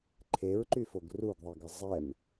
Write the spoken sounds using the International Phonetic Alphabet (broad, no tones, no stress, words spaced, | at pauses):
ǃʰeɹǃyfoɡ ruɡðˤiɡə zˤɛm